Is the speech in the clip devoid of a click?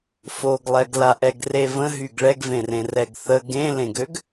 yes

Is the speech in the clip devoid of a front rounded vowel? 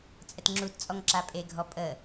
yes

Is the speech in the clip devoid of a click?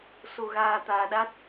yes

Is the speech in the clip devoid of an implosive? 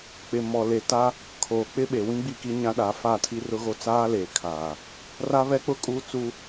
no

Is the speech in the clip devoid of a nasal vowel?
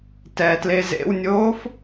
yes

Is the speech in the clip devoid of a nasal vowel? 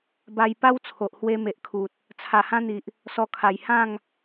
no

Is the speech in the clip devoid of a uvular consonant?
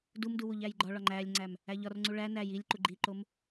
yes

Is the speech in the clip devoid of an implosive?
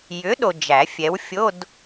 no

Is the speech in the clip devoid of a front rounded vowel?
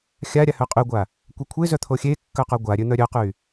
no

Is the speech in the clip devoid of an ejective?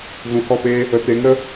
yes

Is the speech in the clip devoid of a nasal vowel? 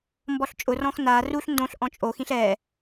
no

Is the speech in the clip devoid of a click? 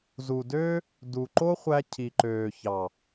no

